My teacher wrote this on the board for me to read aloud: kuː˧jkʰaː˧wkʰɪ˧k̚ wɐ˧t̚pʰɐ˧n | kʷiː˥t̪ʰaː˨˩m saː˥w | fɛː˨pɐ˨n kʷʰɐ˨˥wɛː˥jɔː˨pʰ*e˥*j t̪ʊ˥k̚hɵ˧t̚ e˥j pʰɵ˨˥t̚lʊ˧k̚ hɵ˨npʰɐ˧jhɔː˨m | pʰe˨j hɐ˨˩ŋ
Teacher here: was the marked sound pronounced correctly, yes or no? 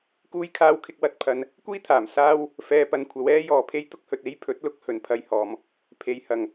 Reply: yes